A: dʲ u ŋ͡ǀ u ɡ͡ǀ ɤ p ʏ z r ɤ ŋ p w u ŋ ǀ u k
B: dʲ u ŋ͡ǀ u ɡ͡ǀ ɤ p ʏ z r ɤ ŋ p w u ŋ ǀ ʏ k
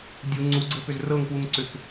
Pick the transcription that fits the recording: B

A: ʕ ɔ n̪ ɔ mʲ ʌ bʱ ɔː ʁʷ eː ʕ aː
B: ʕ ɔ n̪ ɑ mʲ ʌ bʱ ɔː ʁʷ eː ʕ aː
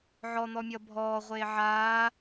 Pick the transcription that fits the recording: A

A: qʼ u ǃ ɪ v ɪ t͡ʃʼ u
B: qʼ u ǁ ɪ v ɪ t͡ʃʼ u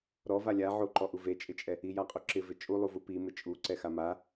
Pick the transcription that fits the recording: B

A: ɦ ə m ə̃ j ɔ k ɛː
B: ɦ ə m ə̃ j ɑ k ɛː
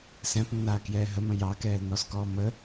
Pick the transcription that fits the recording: B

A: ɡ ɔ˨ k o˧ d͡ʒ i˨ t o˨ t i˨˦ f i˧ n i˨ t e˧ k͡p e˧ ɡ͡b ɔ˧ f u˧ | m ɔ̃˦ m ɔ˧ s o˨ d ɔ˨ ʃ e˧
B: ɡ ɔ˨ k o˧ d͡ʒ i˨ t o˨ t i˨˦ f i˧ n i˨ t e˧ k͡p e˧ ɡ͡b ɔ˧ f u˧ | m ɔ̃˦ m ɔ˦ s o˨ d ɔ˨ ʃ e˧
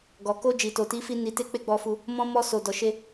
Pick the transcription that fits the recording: A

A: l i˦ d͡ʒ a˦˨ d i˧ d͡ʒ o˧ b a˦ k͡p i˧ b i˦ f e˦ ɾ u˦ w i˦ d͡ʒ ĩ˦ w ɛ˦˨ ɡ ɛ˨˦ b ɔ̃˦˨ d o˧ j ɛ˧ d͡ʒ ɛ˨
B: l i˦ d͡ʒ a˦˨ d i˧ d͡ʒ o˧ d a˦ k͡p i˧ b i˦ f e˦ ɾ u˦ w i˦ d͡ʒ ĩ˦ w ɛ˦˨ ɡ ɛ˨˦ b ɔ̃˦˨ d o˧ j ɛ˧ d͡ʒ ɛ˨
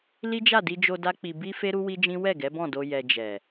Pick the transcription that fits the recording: B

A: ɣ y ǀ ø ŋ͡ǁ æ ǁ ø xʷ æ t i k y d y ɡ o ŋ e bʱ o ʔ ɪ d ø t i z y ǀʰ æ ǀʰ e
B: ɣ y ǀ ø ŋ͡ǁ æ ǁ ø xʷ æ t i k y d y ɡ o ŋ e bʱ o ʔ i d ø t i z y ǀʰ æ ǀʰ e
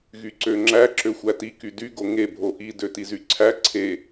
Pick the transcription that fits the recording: B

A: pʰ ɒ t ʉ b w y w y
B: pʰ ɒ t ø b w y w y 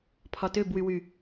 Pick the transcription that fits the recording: B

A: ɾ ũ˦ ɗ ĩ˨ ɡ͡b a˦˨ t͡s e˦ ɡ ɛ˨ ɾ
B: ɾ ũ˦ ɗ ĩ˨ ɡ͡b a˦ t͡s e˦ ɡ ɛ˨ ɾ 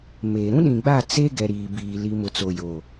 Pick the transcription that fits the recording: A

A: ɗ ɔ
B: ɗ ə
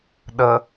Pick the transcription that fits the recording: B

